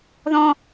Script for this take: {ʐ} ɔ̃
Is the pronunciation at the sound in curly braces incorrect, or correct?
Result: incorrect